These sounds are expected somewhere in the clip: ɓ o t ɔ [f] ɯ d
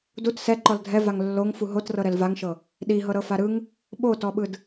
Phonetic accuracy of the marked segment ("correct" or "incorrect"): incorrect